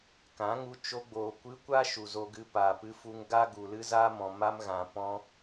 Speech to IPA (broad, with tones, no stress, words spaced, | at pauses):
kã˨˦ŋu˧ t͡ʃo˧ɡ͡boː˨kʷɨ˧kʷa˦ ʃu˨zo˧ɡɨ˧ paː˨pɨ˧fu˧ŋ ɡa˦ ɡu˨lɨ˦zaː˦mɔ̃˨ ma˦mɣã˨ pɔ̃˧